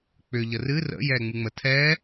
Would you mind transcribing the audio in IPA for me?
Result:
k͡p ʏ ʎ ə r ɨ r ə̰ j ɛː ŋ͡m ɨ ŋ͡m ə tʰ ɛː

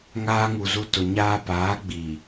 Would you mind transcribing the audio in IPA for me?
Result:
ŋ aː˦ ŋ u˨ z u˦ t ʊ˨ ɲ aː˦ p aː˨˦ ɡ͡b iː˨

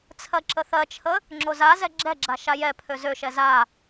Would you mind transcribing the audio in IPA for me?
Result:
t͡sʰ ɜ ǁ ə θ ɜ t͡ʃʰ ə | ŋ͡ǁ o z a z ɛ ɡ͡ǁ ɛ ɡ͡ǁ a ʃ a j ɛ pʰ ø z ø ʃ ɛ z a

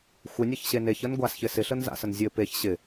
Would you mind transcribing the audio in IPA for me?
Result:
xʷ ə nʲ ə ç ɕ e n e ç ə n ɡʷ a s ç ɪ s ɪ ɬ ə n z a̰ s ə n zʲ ɘ p e ç ɕ ɪ

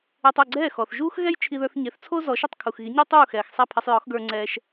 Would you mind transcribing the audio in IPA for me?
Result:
e˧ tˤ o˥˩ ɡ͡ǀ ɛː˥˩ x ɔ˩ θ ʒ uː˥ x ɣ ɛ˥ j t͡ʃʰ i˧ ð ə˞˧ θ ɲ e˩˥ θ t͡sʰ o˥ z ɔ˩˥ ʃ i˥˩ tˤ kʰ u˩ x ɣ i˩˥ ɲ u˥ tˤ uː˥˩ x ɛː˩ x sˤ ɛ˥˩ pʰ ɛ˧ sˤ j ɔ˩˥ x ɡ ə˞˧ ŋ͡ǀ ɛː˧ ʃ

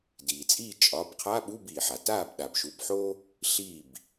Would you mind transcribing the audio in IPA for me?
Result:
d iː˩ t͡sʼ iː˥˩ t͡ʃʼ ɒ˩˧˩ b qʰ a˧˥˧ ɓ u˧˥˧ b iː˩ ħ a˩ t aː˥˩ b ɗ a˩ b ʃ u˩˧˩ b ħ o˥ | ɬ iː˥˩ b

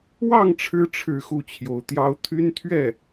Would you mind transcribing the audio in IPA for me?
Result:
w ɑ˥˩ ŋ ʈ͡ʂʰ ɻ̩˧˥ ʈ͡ʂʰ ɻ̩˥˧ x u˥˩ t͡ɕʰ j o˧˥ ʊ̯ t̪ j ɑ˥ ʊ̯ t̪ʰ y˥ n t̪ʰ ɥ ɛ˥˩

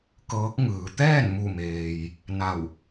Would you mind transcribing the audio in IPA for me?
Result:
k ɤː˧˥ k̚ ŋ ɯː˩˧ t̪ ɛː˥˨ n m u˧˩ m eː˩ j | n a˧˩ w

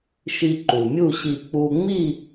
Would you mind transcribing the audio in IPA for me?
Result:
ʃ i˧ ǃ u˩ mʲ u˥˨ ɕ i˧˩ k͡p u˧ ŋ͡m i˥˨

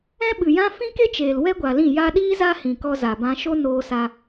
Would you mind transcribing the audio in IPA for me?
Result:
ɛ̃˦ ɓ ɨ˨ j ã˦ f ĩ˦ k e˦ t͡ʃ eː˨ l w ɛ˦ ɡʷ a˨ l ĩ˦˨ j a˧ ɗ iː˦ z a˦ h ĩ˨ k ɔ˧ z a˨ b ã˧ ʃ o˦ n oː˧ s a˧

